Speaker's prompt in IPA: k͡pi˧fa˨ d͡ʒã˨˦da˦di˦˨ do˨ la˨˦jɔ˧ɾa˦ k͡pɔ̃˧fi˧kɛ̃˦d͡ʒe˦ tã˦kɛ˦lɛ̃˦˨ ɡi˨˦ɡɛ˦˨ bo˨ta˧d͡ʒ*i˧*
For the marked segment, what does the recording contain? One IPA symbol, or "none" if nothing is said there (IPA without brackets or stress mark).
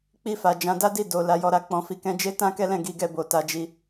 i˧